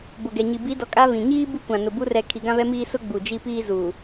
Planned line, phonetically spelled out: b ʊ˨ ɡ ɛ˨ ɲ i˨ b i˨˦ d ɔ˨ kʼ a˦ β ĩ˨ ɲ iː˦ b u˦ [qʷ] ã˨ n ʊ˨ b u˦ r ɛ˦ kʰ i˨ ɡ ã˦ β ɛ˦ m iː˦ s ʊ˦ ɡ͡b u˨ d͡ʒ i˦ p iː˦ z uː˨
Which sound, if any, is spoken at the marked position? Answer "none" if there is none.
kʷ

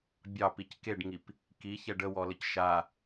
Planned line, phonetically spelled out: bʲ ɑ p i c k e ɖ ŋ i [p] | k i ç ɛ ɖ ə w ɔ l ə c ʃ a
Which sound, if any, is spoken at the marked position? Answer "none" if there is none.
p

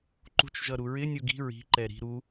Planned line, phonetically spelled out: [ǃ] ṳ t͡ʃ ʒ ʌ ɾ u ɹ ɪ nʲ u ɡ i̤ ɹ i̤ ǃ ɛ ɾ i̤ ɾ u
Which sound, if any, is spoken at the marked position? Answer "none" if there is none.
ǃ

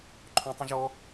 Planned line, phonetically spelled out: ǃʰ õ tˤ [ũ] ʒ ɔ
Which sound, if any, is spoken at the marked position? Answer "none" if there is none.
ũ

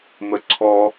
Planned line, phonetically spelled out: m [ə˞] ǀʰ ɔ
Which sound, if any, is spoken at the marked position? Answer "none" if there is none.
ə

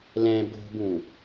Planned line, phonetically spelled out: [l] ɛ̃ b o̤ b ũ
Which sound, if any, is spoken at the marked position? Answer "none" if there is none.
l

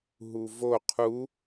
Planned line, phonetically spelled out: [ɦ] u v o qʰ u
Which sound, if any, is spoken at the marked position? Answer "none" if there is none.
ɦ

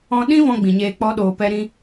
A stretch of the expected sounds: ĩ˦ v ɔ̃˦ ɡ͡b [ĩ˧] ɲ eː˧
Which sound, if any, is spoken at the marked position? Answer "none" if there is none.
ĩ˨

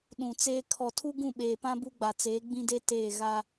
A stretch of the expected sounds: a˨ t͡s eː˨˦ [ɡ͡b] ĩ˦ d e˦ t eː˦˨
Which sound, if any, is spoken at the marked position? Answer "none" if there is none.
ɡ͡b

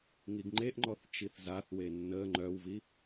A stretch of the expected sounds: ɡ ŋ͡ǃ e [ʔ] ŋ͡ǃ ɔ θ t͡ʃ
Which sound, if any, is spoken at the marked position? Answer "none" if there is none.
ʔ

